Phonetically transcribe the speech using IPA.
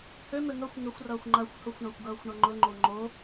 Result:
h ʏ m ʏ ŋ ʌ xʷ ŋ ɘ xʷ r ʌː xʷ ŋ͡ǃ a xʷ h ʊ xʷ ɳ a xʷ ɡ ʌː xʷ ɳ ʌ ŋ͡ǃ ʊ ŋ͡ǃ o ŋ͡ǃ o

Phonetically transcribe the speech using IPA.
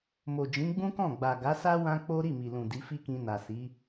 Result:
m o˨ d͡ʒ ĩ˨˦ ɡ͡b ũ˦ k ɔ̃˦˨ ɡ͡b a˨ ɡ a˨˦ s a˦ w ã˦ k͡p o˦ ɾ i˦˨ m i˨ l ũ˨ d i˨˦ f i˦ k ĩ˧ n a˨ s i˨˦

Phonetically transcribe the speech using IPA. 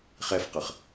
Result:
χ ɛ f q ə χ

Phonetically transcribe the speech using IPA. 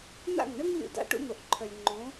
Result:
n̪ a̰˦˨ ŋ ɳ ə˦ ŋ lʲ ṵ˦ d a̰˦ ʈ ṵ˦ n̪ o˨ ʔ ǃʰ œ˨ lʲ ŋ͡ǃ õ˨˦

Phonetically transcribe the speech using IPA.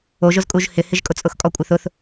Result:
o ʒ ʊ z kʼ u ʒ h ɪ h ɪ ʒ kʼ ʊ t͡sʼ ʊ x kʼ ɔ kʷʼ ɪ θ ʊ θ

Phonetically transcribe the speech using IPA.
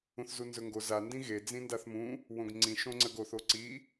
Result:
ũ θ z u n z ɵ ŋ ɡ o z a n d ĩ ɣ e d͡z ĩ n d a θ m ũ | w õ ɡ ŋ͡ǀ ĩ ʃ õ ŋ͡ǀ ə ɡ o θ o ǀ i

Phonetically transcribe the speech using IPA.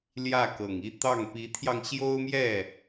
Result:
l j ä˥˩ k ɤ˨˩ ŋ i˥˧ t̪ ɑ˥˩ ŋ p i˧˥ t̪ʰ j ɑ˧ ŋ ɕ j o˥ ʊ̯ m j ɛ˥˩

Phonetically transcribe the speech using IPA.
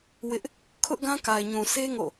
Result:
w ɪ˦ ʔ | kʰ ʊ˦ ʔ ɡ ã˦ k a˨ ɪ̯ ɲ ũ˨ sʰ e˦ ŋ o̰˦˨

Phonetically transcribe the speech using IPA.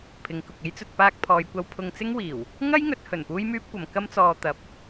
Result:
pʰ ɪ˨˧ ŋ k ʊ˨ k̚ e˥ j t͡s ɵ˧ t̚ p aː˧ k̚ pʰ ɔː˨ j kʷ ɐ˧ w pʰ ʊ˧ ŋ t͡s ɪ˥ ŋ w iː˨˩ w | ŋ ɐ˥ j ŋ ɵ˨˥ t̚ h ɵ˨˩ n p uː˥ j m yː˥ p̚ kʷ ɐ˨˧ m k ɐ˥ m t͡s ɔː˧ t̪ ɐ˨˥ p̚

